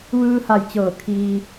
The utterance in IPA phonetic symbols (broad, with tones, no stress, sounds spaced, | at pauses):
ʋ ɯː˧ h a˧˩ j t͡ɕ ɤː˧˩ kʰ iː˧